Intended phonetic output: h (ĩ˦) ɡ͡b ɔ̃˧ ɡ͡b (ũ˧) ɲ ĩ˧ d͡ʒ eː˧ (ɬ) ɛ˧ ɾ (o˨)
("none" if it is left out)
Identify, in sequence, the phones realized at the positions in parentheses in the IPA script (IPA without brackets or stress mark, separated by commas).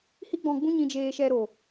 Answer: i˦, ũ˦, ʃ, o˨